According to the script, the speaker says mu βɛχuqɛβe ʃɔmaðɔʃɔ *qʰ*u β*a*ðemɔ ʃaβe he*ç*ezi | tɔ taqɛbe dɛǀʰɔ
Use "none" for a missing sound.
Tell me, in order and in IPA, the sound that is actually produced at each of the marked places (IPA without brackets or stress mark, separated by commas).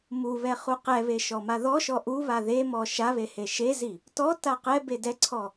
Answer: ʔ, a, ʃ